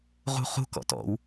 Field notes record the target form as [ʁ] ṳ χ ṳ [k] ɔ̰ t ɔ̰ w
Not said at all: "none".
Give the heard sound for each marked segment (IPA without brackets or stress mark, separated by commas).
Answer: ʁ, k